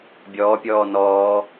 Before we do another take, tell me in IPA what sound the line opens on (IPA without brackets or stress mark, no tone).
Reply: bʲ